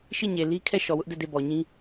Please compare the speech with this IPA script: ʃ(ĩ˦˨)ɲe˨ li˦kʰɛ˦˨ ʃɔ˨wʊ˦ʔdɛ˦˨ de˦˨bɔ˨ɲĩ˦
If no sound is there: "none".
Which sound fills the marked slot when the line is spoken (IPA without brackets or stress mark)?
i˦˨